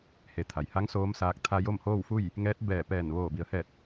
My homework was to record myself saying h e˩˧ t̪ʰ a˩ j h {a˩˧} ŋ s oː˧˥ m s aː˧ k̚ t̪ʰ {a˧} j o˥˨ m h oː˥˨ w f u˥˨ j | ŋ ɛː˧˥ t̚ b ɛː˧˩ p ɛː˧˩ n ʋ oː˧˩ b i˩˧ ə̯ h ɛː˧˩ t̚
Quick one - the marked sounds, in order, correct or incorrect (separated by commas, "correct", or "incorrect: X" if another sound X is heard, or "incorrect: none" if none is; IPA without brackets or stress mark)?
incorrect: a˧˥, correct